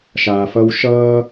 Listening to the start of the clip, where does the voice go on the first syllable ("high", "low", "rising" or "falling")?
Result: low